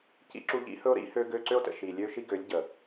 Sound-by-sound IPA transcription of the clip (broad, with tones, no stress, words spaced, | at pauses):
cḭ˦ǁu˦ ʎḭ˦ hɵ˦o̯ɾḭ˦ hø˦ɡø˦ ǀø˦o̯tə̰˨ʃi˨ lʲø˦ʃi˦ ɡø˨˦lʲ ɟə˨